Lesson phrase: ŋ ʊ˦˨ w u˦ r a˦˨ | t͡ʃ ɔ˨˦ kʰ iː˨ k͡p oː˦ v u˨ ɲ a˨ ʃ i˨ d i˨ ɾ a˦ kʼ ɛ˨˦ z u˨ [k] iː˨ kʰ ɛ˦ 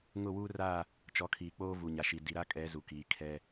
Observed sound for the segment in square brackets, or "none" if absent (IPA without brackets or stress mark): k